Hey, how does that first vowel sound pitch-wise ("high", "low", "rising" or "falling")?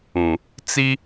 low